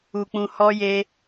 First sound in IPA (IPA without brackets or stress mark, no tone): u